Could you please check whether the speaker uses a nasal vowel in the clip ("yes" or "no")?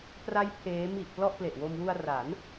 no